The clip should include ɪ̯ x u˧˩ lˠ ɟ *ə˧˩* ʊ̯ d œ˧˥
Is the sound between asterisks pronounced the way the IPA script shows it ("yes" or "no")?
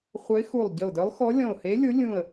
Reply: yes